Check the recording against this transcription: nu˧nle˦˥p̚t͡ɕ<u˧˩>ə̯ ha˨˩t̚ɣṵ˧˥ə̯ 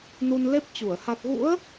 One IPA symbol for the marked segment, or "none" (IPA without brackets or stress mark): u˧˩